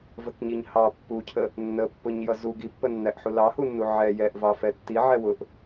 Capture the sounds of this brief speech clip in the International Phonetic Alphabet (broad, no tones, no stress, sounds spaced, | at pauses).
v ə k ɲ i ɲ h ɑ pː u cʰ ə | nː ə pː ʊ ɲ j ʌ z u ɡ i pː ə nː æ ʔ ħ u l ɑ h u nː u ʕ ɛ j ɛ ʔ v ɑ f ɛ tː i ʕ ɛ w ʊ ʔ